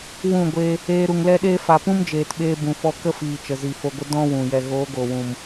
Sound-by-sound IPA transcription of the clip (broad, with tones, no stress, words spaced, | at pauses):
wũ˦˨ɡʷe˧ | eː˧ ɾu˨ŋlɛ˦ɗeː˦ fa˨pũ˦md͡ʒeː˨tɓeː˧ bũ˨fɔ˧kə˦fiː˨ t͡ʃə˨zi˨fo˧ɡʷə˦ dɔ̃˦ wũ˨jɛ˧ ɣoː˨˦ɡoː˨wũ˨m